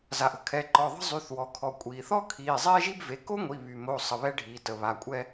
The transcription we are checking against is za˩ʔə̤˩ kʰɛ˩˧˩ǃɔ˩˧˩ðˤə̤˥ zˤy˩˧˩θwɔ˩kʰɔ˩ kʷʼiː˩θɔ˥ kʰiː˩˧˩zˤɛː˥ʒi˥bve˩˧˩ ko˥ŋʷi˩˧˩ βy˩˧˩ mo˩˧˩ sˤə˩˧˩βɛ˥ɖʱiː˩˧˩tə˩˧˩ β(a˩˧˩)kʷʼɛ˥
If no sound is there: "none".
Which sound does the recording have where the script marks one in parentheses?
a˩˧˩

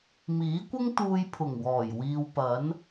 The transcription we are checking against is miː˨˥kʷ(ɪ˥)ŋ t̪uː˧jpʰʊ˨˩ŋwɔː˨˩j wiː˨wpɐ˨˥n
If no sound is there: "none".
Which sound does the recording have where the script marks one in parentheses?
ɪ˥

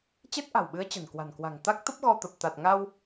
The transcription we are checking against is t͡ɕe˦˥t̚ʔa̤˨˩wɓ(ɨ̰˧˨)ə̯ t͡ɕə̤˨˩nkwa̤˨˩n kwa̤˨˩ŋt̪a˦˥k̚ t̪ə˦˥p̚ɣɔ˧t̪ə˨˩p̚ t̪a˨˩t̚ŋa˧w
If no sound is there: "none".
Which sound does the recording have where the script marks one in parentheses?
ɨ˨˦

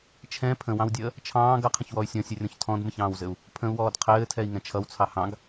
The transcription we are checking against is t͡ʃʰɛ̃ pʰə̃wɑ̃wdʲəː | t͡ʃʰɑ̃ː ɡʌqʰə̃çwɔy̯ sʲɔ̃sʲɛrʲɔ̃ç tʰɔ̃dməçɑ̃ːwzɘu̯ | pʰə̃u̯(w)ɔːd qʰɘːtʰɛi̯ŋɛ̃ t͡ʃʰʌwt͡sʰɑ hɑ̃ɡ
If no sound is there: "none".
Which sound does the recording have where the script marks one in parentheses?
w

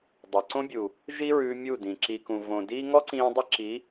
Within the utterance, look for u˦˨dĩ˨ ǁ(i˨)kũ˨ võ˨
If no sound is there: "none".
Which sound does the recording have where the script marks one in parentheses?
i˨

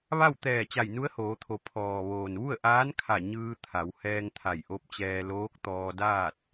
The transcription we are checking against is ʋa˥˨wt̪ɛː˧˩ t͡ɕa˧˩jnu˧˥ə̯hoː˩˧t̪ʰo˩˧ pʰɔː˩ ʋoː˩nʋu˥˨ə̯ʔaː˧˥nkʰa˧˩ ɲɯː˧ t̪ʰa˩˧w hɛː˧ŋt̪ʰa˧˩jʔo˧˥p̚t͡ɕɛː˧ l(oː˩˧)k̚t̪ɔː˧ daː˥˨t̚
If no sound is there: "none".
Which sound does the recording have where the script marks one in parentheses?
oː˧˥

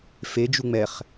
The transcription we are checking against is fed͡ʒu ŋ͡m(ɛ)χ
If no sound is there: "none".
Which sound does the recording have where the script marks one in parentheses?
ɛ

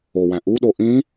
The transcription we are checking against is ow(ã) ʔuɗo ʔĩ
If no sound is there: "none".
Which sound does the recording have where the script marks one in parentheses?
æ̃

